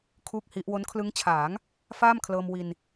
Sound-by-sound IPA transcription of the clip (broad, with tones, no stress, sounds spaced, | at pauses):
kʰ uː˥˩ k̚ h i˦˥ ʔ w o˦˥ n kʰ l ɯ˦˥ ŋ t͡ɕʰ aː˩˦ ŋ | f aː˥˩ m kʰ l ɤː˧ m w i˧ n